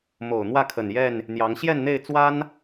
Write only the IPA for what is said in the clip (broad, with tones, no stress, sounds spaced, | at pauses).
m o˨˩ ʊ̯ n̪ w ä˥˨ kʰ ə˨˩ n j ɛ˥˨ n | n̪ j ɑ˨˦ ŋ ɕ j ɛ˥˨ n n̪ e˥˨ ɪ̯ t͡s w a˦ n